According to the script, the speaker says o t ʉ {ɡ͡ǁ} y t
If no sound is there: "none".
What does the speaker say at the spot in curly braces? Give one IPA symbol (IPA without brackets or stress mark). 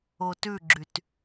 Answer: ɡ͡ǁ